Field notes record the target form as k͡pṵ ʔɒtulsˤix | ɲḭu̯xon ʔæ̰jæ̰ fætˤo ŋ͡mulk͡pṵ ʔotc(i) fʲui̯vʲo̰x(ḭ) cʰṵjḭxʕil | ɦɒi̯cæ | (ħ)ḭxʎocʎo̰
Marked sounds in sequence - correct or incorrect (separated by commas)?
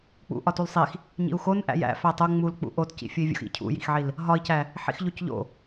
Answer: incorrect, correct, correct